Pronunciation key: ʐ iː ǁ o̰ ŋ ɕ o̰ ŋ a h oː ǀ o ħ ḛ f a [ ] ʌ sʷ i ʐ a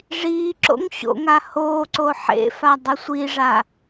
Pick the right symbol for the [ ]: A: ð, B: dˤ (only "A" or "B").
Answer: B